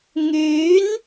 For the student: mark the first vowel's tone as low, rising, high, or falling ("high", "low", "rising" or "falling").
rising